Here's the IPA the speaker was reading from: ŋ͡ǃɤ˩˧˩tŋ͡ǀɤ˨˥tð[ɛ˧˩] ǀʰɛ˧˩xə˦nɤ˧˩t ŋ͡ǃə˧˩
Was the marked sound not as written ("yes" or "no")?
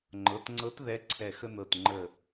yes